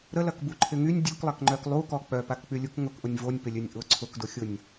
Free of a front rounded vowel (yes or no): no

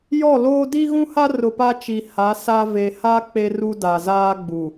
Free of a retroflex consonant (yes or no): yes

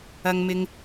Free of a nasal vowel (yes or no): yes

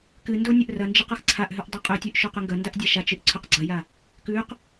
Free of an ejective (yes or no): no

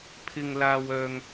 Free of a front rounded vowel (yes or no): no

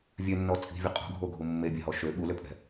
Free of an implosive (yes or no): no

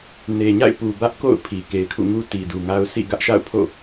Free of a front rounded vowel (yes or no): yes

